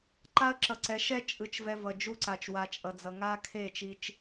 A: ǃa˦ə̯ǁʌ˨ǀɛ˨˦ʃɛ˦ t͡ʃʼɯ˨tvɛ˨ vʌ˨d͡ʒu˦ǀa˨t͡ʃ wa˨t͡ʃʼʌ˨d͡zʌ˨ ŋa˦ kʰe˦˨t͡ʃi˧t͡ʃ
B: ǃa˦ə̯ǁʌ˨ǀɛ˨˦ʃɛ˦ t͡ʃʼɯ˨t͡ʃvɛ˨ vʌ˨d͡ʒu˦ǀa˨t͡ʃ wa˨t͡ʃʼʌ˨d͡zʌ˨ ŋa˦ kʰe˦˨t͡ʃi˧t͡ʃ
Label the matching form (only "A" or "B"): B